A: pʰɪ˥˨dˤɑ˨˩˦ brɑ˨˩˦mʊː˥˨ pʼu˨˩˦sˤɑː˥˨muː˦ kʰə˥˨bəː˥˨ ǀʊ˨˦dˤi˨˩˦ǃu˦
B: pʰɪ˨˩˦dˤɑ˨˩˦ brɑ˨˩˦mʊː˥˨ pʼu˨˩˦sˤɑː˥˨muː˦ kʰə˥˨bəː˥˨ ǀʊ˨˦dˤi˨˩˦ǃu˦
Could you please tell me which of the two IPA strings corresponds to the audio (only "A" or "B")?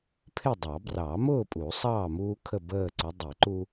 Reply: A